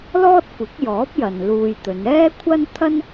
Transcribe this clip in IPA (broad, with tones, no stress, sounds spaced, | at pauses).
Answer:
l ɔː˥ t̚ kʷ ɪ˨˥ k̚ j ɔː˨˥ p̚ j ɐ˨ n l uː˧ j t̪ ɵ˨˧ n ɛː˥ kʷʰ ɐ˥ n t̪ʰ ɐ˥ n